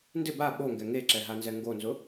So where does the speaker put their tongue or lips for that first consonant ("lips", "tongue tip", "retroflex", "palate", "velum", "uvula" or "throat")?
tongue tip